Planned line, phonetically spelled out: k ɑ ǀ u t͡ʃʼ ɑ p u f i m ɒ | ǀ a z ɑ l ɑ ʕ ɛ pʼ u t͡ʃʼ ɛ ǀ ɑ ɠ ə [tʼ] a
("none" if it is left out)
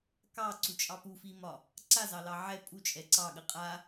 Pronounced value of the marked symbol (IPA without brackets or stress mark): qʼ